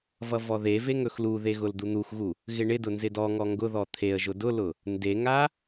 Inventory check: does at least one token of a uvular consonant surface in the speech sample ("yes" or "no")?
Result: no